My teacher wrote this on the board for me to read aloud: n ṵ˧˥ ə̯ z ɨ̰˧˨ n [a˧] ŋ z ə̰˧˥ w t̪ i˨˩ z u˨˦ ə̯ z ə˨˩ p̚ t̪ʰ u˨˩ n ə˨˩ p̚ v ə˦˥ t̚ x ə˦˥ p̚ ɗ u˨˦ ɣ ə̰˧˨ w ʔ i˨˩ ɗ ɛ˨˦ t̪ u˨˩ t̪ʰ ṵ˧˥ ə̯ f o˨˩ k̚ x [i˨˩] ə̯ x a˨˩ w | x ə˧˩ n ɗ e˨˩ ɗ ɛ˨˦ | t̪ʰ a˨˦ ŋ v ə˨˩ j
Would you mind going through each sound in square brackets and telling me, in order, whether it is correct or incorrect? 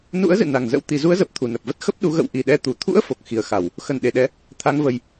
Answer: incorrect, correct

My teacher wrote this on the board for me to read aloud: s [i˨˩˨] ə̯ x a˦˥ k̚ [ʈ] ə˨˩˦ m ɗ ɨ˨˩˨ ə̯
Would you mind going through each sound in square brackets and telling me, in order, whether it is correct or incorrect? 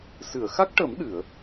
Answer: incorrect, correct

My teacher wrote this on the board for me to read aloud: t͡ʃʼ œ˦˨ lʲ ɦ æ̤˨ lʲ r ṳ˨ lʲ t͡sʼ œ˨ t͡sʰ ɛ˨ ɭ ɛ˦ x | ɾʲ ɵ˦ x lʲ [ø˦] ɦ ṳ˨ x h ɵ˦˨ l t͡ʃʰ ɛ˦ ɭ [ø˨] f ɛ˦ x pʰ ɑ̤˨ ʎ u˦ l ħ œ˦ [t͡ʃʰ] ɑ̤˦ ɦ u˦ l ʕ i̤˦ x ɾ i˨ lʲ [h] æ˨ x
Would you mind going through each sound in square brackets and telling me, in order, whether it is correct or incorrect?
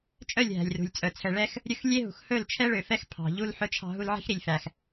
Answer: incorrect, correct, correct, incorrect

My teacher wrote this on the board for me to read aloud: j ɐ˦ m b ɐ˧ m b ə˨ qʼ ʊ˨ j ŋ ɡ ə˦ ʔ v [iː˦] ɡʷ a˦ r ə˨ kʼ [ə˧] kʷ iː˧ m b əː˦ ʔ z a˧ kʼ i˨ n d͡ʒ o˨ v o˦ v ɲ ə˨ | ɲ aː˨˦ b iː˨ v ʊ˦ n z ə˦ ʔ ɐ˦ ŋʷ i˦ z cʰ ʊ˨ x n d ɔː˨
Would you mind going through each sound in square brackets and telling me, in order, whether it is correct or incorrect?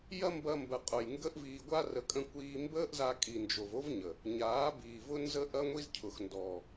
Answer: incorrect, incorrect

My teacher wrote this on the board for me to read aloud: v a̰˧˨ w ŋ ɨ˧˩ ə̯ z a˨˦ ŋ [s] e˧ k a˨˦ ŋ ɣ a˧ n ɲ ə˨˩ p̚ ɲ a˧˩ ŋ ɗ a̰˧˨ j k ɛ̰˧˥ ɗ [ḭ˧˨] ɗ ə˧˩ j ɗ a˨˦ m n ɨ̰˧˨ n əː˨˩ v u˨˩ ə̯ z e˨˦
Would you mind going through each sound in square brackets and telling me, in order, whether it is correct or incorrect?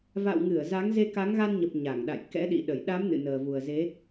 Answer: incorrect, correct

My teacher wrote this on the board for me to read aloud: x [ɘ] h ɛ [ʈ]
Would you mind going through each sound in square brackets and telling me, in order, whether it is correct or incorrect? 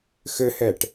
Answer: correct, correct

